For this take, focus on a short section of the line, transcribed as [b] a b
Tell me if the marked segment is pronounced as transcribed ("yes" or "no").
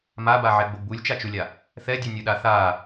no